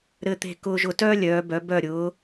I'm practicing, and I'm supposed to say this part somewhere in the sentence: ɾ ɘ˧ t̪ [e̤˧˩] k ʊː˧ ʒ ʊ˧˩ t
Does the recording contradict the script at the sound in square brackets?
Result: no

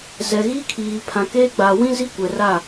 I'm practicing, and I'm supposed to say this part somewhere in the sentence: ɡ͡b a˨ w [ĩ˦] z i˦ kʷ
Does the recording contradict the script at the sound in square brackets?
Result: no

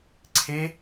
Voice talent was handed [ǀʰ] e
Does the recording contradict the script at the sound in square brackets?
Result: no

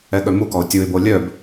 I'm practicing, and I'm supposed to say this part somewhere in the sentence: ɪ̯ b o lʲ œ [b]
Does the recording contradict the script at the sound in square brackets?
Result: no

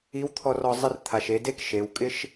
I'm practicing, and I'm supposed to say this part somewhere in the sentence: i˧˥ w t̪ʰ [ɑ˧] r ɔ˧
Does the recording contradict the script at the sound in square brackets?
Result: yes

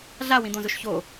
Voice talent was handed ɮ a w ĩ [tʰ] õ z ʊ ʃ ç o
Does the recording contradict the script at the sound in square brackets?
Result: yes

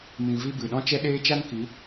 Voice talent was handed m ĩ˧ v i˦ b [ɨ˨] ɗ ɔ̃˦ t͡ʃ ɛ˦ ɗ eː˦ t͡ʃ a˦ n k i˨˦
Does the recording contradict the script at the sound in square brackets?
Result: no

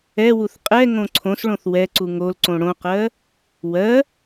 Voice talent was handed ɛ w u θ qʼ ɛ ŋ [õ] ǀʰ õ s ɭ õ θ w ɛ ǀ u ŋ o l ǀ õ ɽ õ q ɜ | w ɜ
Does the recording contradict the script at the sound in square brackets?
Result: no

